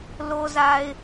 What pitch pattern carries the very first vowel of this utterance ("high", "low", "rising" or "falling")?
low